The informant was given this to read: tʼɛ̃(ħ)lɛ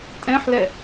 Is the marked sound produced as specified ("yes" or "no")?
yes